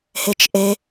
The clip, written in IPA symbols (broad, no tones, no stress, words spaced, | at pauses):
het͡ʃʔe